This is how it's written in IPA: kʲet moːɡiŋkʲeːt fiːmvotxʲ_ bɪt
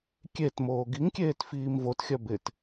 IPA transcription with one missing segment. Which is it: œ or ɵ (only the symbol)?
œ